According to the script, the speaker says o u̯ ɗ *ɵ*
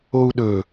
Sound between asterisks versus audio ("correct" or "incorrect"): correct